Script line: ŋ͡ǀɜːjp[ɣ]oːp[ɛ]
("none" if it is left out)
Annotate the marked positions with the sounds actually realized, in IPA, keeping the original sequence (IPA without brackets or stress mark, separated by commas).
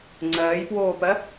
w, ɜ